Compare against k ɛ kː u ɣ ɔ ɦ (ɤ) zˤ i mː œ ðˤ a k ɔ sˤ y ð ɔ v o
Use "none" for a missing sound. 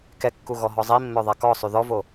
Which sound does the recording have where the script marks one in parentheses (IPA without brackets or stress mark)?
ɔ